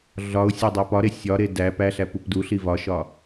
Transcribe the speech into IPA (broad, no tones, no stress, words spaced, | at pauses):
ɮɒʊ̯ sʲædˤepɒɾe sʲɒɾe dæ pæɬæ pupduɬi vɒʃɒ